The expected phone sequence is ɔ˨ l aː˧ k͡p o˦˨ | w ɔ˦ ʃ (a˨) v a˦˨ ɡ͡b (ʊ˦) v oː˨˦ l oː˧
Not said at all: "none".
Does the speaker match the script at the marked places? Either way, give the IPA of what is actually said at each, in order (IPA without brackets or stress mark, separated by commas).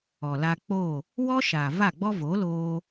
aː˨, ɔ˦